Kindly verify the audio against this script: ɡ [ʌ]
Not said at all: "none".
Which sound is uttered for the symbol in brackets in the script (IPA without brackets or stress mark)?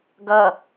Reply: ʌ